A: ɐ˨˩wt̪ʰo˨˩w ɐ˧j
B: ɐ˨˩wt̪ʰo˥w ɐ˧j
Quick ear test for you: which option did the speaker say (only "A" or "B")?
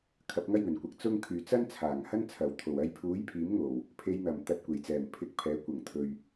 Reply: A